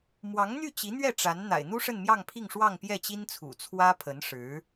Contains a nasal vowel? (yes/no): no